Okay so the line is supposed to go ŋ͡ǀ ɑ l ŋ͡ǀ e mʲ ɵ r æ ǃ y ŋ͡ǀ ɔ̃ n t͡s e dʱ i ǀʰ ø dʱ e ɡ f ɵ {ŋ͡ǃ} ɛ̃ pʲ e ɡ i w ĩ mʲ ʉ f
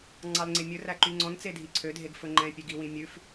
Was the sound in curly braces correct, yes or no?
yes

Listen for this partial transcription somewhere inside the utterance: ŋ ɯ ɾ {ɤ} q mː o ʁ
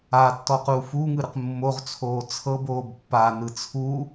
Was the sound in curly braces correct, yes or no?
no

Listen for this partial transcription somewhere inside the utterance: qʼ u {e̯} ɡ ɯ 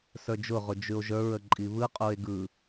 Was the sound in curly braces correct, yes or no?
yes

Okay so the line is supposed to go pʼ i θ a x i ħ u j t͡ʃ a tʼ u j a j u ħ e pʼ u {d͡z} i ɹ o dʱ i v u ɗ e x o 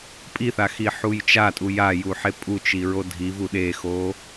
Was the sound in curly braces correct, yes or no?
no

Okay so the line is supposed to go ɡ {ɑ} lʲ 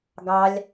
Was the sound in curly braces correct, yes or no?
yes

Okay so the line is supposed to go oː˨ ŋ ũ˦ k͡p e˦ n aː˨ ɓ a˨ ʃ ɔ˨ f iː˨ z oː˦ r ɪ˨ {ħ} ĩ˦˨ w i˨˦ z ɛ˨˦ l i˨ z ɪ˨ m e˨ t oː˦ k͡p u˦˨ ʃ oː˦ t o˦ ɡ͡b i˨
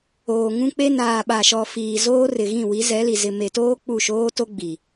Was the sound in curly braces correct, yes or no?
no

